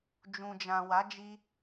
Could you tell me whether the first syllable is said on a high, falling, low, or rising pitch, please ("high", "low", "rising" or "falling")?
low